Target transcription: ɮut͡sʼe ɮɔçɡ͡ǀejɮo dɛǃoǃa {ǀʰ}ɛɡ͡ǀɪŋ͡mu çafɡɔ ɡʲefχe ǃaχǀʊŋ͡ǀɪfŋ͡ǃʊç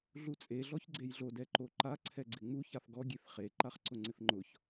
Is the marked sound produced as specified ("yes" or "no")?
yes